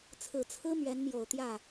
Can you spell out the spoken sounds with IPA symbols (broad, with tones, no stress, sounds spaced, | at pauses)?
t͡sʰ ɹ̩˨˩ t͡sʰ ɹ̩˥ m ɥ ɛ˧˥ n m j o˨˩ ʊ̯ t̪ j ä˥˩